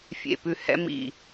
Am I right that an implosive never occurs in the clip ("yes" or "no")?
yes